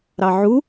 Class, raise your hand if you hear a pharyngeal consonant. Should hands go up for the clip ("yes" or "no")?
yes